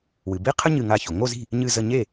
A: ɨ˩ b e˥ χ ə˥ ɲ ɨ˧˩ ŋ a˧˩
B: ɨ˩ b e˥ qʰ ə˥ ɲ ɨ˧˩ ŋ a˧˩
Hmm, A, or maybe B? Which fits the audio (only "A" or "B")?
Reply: B